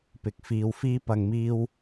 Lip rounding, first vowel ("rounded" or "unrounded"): unrounded